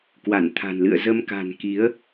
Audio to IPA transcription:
k w a˧˩ n t̪ʰ a̤˨˩ n l ɨ̰˧˨ ə̯ z ə˧ m k a̤˨˩ n k i˨˦ ə̯

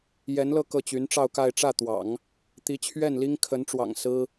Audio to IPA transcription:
j ɛ˧˥ n l ɤ˥˧ k ɤ˥˩ t͡ɕ y˧˥ n ʈ͡ʂ ɑ˥˧ ʊ̯ k a˥˧ ɪ̯ ʈ͡ʂ ä˥˩ t̪ w ɑ̰˨˩˦ ŋ | t̪ i˧˥ t͡ɕʰ ɥ ɛ˥˩ n l i˥ ŋ kʰ ə˧˥ n ʈ͡ʂ w ɑ̰˨˩ ŋ s ɹ̩˥

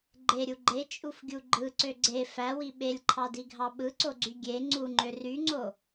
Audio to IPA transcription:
ɡ͡ǃ e ɾʲ u ɡ͡ǃ e t͡ʃʼ u f ɡʲ u ɡ͡ǃ ɯ ǀ ø ɡ͡ǀ e f æ w i ɓ e lʲ ǃʰ ɑ d i ɡʱ ɑ ɓ ɯ ǀ o ɡ͡ǀ y ɡʲ e ŋ͡ǀ u ŋ͡ǃ ø r y ŋ͡ǀ o

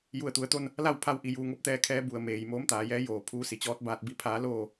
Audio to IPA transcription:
j u˧˩ ə̯ t̪ u˩˧ ə̯ t̪ o˥˨ n | l a˥˨ w pʰ a˧˥ w ʔ i˩˧ j uː˧˩ ŋ o˥˨ p̚ t̪ ɛː˧ kʰ ɛː˧˥ b u˧˩ ə̯ m eː˩ j m oː˧˥ m t̪ aː˩˧ j ɛː˧˥ j oː˧˩ pʰ uː˧˥ s i˩ t͡ɕ ɔː˧˥ t̚ b aː˧ t̚ b i˧˥ pʰ aː˧˥ l oː˥˨

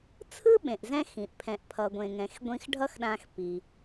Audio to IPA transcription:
t͡sʰ ɯ˥ ɓ ẽ˩ ʔ z ɛ̃˧ x ĩ˩ ʔ pʰ ɛ̃˩ ʔ pʰ ʌ˩ ɡʷ ẽ˩ ŋ ɛ̃˩ x ɡʷ ĩ˧ x ɖʱ ʌ˥ x ɗ ã˧ x p i˩

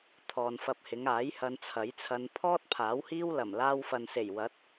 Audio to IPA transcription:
t̪ʰ ɔː˨ n f ɐ˧ p̚ h ɪ˨˧ ŋ aː˨˥ j h ɐ˧ n t͡sʰ ɐ˨˥ j t͡sʰ ɐ˧ n pʰ ɔː˥ t̚ pʰ aː˨˥ w h iː˥ w l ɐ˨˩ m l aː˧ w f ɐ˨ n s e˨˩ j w ɐ˨˥ t̚

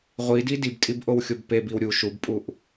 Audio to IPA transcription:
ʁʷ i d i d i b tʼ i b ʔ o w xʲ o b p e b i w ɾʲ u ʃ u b pʼ u ʔ

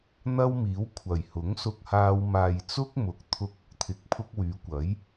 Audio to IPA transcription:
n̪ ɐ˥ w m iː˨˥ w kʷʰ ɐ˨˩ j h ʊ˨˥ ŋ s ʊ˧ k̚ h aː˧ w m aː˨ j t͡s ʊ˥ k̚ m ʊ˨˥ k̚ t̪ʰ ʊ˧ k̚ ʊ˧ k̚ t̪ʰ ɪ˧ k̚ pʰ ʊ˥ k̚ w yː˨˧ kʷ ɐ˨˥ j

